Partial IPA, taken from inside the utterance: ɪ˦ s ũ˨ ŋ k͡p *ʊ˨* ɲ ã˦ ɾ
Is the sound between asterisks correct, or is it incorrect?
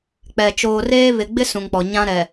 incorrect